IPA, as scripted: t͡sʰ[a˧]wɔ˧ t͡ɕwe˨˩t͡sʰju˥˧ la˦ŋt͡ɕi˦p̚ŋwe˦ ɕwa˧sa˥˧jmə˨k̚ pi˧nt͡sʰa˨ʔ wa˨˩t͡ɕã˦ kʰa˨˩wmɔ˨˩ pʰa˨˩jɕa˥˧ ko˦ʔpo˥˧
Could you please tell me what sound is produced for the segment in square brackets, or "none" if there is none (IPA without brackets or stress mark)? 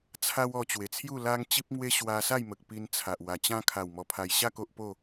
a˦